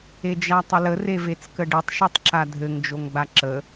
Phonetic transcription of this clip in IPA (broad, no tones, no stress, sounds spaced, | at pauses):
e d͡ʒ a tˤ ə l ə r e v e t͡s k ə ɖ e tˤ ʃ e tˤ ǁ a dʱ ɘ ŋ d͡ʒ o ŋ ɡ͡b a ǁ ə